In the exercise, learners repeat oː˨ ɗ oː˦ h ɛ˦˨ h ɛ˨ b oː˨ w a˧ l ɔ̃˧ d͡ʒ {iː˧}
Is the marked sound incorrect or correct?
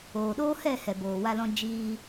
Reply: correct